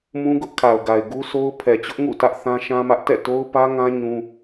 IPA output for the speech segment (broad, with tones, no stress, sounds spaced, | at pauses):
m ũ˦ ɡ ʊ˦ ʔ kʰ a˨ ʊ̯ ɡ a˨ ɪ̯ ɡ u˦ sʰ o˦ ʊ̯ pʰ ɛ˨ t͡ɕ ʊ˦ ʔ ŋ ṵ˦˨ t ä˦ ʔ θ ã˦ ʃ ã˦ m ä˦ ʔ t ɛ̰˦˨ t o˦ ʊ̯ p ä˦ ŋ ã˦ ɲ ũ˦